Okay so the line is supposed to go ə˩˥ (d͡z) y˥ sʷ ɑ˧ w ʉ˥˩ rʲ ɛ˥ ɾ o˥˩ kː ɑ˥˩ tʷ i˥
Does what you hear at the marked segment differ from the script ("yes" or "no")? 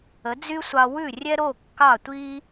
no